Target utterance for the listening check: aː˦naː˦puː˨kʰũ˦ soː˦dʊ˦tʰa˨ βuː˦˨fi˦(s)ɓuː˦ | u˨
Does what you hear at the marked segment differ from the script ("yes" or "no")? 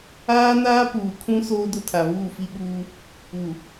yes